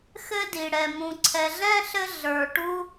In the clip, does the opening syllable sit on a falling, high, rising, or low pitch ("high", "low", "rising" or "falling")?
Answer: high